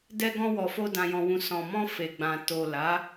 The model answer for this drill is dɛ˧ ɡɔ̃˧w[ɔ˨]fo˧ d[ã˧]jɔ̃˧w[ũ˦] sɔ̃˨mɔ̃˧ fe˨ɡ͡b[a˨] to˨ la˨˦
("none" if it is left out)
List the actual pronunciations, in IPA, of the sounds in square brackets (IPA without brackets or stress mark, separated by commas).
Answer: ɔ˨, ã˧, ũ˧, ã˨